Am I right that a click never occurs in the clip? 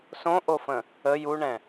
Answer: yes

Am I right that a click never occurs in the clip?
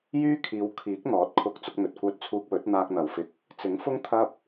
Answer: yes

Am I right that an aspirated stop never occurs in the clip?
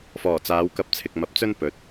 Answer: no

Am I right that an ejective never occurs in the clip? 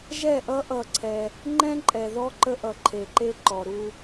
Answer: no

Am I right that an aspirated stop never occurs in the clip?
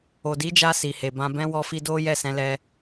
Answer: yes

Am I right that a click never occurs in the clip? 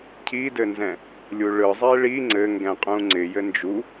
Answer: no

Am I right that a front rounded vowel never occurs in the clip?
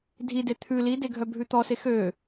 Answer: no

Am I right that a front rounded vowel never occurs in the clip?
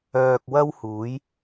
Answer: no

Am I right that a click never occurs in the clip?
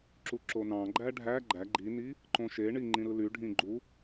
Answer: no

